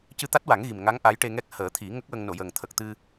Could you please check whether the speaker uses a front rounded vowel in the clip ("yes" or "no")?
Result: no